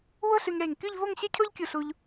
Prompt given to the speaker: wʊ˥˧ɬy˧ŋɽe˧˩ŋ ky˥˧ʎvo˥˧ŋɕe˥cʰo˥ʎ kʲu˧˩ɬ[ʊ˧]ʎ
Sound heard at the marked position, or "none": u˧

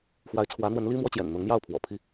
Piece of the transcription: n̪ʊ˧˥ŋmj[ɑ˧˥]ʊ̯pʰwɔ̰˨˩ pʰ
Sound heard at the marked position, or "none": ɑ˥˩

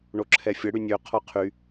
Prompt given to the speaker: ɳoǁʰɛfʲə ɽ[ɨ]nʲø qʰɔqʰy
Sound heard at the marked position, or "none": y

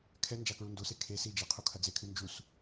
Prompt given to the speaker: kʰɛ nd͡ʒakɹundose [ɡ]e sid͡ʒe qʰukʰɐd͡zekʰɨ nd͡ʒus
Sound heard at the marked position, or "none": kʰ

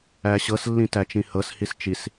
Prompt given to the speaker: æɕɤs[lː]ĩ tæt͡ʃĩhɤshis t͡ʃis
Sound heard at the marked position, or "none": lː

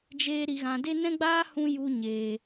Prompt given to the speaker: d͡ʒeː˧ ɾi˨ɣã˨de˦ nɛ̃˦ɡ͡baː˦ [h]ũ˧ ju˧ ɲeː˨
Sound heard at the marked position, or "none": h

